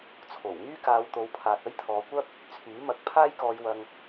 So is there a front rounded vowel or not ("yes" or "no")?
yes